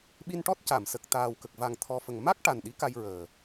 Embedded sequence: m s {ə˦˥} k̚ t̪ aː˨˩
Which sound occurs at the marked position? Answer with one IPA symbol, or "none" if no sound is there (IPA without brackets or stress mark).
ə˨˩